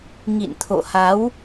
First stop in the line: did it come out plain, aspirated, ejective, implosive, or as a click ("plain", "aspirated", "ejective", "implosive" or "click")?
aspirated